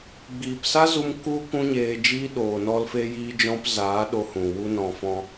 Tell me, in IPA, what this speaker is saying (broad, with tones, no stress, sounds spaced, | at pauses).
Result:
ɡ͡b iː˨ p s a˦ z u˧ m k u˦ k ũ˦ ɲ eː˧ d͡ʒ iː˦ ɗ oː˨ n ɔ˧ l f e˧ j iː˦ d͡ʒ ɔ̃˦ p z aː˨˦ ɗ o˧ h ũ˨ w u˦ n ɔ̃˧ f ɔ̃˧